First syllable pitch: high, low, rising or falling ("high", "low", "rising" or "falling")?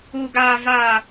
low